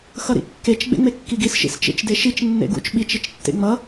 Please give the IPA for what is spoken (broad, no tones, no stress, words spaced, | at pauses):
xʌɾḭkːet͡ʃ ɡ͡bḛŋ͡mekːiɡis ʃḭst͡ʃḛt͡ʃdeʃit͡ʃ nːḛɡṵt͡ʃ ɓit͡ʃ it͡ʃtːḛŋ͡mʌ